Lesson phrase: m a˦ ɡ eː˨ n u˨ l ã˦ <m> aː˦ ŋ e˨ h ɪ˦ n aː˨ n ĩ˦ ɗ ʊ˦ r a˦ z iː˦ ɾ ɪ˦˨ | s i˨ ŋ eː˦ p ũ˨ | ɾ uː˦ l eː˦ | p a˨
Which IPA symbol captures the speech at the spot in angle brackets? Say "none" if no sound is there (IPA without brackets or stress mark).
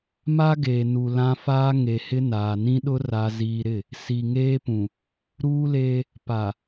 f